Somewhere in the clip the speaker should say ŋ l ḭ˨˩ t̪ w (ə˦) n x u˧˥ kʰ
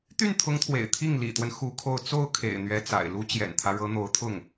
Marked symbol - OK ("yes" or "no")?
yes